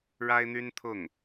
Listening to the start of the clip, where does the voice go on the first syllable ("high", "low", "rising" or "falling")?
high